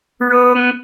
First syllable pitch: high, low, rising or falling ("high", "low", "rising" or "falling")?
high